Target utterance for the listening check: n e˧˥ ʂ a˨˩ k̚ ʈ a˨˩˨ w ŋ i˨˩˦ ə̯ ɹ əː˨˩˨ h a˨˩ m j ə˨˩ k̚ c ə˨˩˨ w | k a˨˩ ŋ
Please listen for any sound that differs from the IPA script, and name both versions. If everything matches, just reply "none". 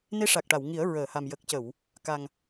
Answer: none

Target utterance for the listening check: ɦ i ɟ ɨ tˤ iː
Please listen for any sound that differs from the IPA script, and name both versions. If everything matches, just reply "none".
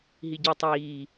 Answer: ɨ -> i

